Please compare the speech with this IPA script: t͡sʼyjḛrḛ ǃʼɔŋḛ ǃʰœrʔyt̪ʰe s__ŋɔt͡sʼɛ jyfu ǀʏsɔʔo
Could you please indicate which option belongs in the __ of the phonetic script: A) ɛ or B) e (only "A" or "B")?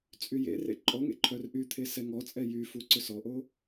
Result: A